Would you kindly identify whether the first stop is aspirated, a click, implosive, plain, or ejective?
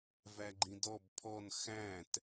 click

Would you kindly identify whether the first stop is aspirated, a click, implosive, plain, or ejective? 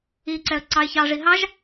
click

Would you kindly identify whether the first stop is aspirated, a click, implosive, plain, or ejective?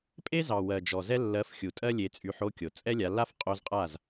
ejective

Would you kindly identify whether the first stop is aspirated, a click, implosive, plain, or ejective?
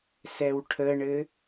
aspirated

